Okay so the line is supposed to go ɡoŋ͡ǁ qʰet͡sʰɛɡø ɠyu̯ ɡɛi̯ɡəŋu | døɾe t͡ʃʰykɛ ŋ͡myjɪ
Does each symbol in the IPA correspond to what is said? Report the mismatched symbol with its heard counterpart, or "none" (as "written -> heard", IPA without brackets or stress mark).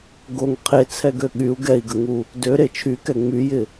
ŋ͡ǁ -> ŋ